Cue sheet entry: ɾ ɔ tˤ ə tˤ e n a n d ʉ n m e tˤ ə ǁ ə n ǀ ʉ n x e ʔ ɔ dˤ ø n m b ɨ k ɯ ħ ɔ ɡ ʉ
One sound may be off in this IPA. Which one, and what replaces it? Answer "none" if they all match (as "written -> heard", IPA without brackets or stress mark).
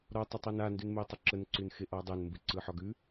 k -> ǀ